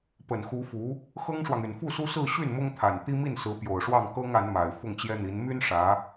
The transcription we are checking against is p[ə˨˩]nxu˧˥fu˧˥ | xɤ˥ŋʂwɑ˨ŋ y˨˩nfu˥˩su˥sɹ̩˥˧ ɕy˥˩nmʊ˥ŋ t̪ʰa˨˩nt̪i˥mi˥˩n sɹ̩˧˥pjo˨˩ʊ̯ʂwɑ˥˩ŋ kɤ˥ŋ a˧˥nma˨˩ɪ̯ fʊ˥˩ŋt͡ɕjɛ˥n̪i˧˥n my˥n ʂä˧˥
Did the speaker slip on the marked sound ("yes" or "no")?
no